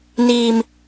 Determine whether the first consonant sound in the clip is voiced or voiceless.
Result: voiced